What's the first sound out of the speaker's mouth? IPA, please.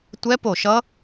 tʷ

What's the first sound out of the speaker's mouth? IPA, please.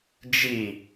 d͡ʒ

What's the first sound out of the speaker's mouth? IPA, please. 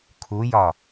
kʰ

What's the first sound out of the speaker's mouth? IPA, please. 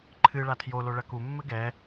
ǃʰ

